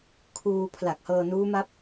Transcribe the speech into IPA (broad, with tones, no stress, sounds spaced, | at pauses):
kʰ uː˧ pʰ l a˨˩ k̚ h ɤː˧ n uː˦˥ m a˦˥ p̚